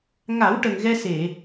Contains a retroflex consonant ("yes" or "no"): yes